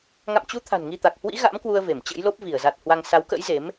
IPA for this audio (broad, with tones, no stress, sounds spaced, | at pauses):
ŋ a̰˧˨ m t͡ɕ u˨˦ t̪ʰ a̤˨˩ n ŋ i˧ t̪ a˨˩ k̚ h w ḭ˧˥ ɣ a̰˧˥ m k w u˧ ə̯ v e˧˩ m t͡ɕ ə̰˧˥ j l o˦˥ p̚ v i˧˩ ə̯ z a˨˩ t̚ h w a˧ ŋ s a˨˦ w k ə̰˧˥ j z e˨˦ m